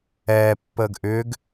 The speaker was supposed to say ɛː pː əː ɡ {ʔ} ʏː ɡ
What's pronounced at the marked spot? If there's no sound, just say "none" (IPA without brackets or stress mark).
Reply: ʔ